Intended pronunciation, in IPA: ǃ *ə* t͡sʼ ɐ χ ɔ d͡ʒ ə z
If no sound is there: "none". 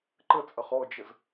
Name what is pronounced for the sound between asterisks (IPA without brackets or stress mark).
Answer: ə